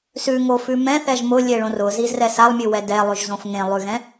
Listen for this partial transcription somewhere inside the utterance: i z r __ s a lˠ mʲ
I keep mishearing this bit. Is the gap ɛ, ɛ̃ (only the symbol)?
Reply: ɛ